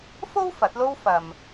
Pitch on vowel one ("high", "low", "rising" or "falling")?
high